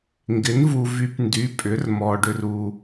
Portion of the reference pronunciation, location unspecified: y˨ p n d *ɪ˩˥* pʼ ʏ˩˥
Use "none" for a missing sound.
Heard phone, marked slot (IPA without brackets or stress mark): y˩˥